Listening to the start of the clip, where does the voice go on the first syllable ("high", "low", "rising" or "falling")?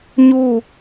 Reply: falling